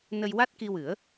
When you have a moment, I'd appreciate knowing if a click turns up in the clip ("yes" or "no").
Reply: no